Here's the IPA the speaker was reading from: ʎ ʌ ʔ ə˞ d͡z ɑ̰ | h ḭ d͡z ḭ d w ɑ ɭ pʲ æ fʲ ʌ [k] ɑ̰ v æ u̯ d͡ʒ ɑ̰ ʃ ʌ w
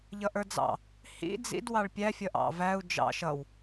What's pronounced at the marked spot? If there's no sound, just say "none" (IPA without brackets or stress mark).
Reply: ʔ